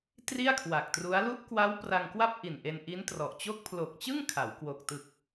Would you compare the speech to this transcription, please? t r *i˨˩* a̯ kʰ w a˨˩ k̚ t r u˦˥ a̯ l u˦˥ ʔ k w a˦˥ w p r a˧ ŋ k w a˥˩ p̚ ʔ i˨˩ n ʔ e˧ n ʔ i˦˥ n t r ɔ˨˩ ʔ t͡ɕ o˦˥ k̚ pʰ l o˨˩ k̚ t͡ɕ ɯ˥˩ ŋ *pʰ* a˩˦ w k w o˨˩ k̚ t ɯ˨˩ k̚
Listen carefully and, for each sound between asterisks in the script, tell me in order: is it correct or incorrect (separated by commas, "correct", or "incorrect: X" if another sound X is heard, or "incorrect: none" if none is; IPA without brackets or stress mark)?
incorrect: i˥˩, incorrect: kʰ